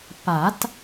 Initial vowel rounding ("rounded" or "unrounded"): unrounded